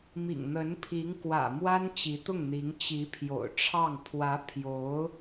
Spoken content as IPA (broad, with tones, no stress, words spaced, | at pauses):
mḭ˨˩ŋn̪ə˧˥npʰi˧˥ŋkwä̰˨˩ mwa˥nt͡ɕi˧˥t̪ʊ˥˩ŋ n̪i˧˥ŋt͡ɕi˧˥pʰjo̰˨˩ʊ̯ʈ͡ʂʰɑ˥˩ŋ pʰwä˧˥pʰjo˧˥ʊ̯